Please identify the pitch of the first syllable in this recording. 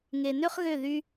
low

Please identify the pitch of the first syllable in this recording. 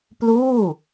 falling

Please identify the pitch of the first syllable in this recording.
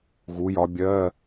rising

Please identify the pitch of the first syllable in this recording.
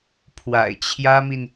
low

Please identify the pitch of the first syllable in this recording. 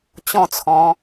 falling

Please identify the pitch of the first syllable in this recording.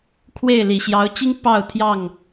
falling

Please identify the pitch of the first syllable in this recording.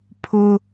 high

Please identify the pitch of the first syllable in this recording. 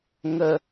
low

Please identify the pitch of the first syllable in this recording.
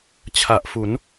low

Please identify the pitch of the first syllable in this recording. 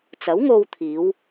rising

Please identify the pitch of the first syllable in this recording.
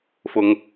low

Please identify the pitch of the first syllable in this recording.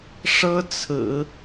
high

